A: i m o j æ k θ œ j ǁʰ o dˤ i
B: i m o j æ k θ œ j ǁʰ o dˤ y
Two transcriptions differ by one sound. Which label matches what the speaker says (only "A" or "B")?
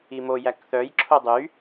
B